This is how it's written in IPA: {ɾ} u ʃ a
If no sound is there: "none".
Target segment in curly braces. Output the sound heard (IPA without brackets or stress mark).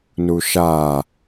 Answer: n